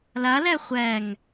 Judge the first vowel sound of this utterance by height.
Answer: low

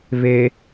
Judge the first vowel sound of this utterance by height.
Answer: mid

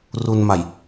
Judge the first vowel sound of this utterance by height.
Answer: high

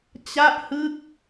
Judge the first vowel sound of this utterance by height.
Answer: low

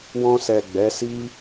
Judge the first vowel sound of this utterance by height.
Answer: mid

